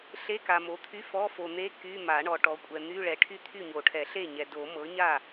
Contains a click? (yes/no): no